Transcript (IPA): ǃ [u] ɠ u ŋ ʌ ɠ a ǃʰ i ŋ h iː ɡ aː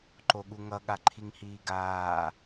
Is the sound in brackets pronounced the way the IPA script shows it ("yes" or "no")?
no